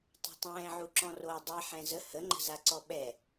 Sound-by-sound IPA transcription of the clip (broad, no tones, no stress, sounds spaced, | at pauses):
tˤ o̤ tˤ ɛ̃ː ʕ u ǁ ɔ̃ r oː dˤ i ħ ɛ̃ z ə h ə ŋ͡ǃ ə̤ z a ǀ ɔ ɓ ɛ